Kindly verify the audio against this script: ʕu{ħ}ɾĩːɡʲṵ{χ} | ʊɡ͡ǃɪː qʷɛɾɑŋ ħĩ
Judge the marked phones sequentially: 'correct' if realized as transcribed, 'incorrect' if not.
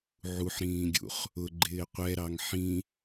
correct, correct

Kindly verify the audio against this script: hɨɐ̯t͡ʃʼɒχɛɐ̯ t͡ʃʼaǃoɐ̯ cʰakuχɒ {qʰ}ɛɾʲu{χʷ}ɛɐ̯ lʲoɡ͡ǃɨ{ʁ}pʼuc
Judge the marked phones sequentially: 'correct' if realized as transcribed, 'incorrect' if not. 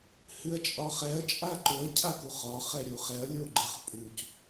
incorrect, incorrect, incorrect

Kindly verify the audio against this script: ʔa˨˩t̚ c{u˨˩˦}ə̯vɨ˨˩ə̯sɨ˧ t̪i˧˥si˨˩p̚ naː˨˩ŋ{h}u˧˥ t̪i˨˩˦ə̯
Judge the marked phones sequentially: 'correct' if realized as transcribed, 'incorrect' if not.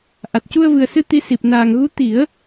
incorrect, incorrect

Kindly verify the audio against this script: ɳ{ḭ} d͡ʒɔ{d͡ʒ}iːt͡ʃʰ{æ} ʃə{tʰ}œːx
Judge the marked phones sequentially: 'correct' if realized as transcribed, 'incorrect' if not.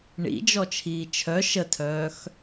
correct, incorrect, incorrect, correct

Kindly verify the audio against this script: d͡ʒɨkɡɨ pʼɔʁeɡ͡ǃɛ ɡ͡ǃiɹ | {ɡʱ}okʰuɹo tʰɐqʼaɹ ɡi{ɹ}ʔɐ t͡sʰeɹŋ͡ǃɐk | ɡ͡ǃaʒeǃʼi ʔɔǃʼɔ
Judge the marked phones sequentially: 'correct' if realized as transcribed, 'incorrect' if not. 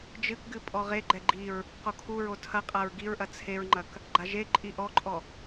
incorrect, correct

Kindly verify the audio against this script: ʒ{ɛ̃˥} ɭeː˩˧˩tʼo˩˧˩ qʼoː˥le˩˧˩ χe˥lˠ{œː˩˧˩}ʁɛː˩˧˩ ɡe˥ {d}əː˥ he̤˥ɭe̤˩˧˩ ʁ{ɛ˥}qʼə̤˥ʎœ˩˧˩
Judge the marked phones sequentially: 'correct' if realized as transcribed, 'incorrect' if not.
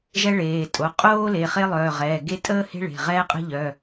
incorrect, correct, incorrect, incorrect

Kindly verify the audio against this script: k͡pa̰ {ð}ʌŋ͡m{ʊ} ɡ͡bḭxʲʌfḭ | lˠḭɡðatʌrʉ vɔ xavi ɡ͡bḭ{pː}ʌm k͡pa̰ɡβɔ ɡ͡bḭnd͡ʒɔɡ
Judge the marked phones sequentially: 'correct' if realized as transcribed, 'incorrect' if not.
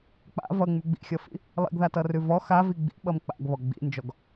incorrect, incorrect, incorrect

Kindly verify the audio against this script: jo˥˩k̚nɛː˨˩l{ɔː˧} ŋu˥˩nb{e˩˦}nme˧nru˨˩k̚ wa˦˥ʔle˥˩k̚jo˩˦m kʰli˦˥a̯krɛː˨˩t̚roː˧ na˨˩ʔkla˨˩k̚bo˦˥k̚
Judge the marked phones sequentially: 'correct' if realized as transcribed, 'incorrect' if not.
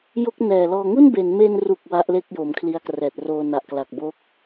correct, correct

